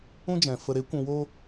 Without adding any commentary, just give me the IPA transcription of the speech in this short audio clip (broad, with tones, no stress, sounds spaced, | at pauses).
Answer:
ũ˦ d͡ʒ ɛ̃˨ f ə˨ ɾ e˨˦ kʷ ũ˧ w oː˦